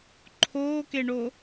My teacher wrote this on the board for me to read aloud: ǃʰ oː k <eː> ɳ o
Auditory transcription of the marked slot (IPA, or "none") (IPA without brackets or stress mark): e